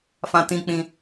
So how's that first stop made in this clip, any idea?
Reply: plain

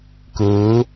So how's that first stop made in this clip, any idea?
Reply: plain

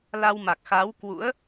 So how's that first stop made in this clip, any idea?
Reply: plain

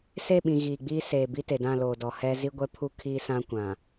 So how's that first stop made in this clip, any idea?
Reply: implosive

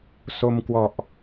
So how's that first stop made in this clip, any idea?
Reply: plain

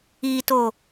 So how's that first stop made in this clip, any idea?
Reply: plain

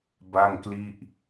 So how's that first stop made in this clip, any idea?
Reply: plain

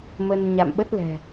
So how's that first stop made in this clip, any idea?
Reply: implosive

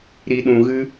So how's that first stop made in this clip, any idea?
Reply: implosive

